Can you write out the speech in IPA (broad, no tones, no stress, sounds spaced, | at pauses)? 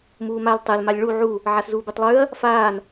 m uː m a l tˤ e l m a lʲ ɭ u ʕ u | ʕ a s z uː b e tˤ lˠ ʉː ɐ̯ | f aː n